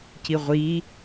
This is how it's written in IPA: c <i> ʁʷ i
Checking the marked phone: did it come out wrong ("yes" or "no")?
no